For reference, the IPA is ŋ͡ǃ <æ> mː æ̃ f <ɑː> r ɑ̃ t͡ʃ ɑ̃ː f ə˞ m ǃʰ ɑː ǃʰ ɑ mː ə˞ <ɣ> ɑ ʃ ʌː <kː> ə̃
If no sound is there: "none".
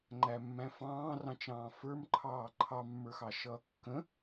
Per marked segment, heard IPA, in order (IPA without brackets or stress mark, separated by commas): æ, ɑ̃ː, x, kː